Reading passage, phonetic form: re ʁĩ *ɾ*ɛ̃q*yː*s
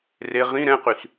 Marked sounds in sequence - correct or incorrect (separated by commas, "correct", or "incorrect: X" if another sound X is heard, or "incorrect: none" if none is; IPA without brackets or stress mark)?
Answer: correct, incorrect: y